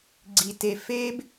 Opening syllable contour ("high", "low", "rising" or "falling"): low